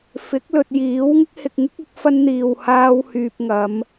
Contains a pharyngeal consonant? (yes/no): no